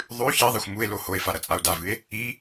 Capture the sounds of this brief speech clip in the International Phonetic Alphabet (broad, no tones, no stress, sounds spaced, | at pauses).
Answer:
ðˤ ʉ ç i ðˤ e xʷ m u e̯ l o h o e̯ f a ɾ ɐ t͡sʼ a o̯ d a v ɨ e̯ | i